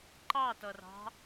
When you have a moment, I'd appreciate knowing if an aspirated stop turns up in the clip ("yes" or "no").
no